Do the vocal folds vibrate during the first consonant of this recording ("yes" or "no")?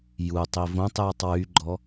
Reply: yes